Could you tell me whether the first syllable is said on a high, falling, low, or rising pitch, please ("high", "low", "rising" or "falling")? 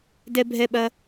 high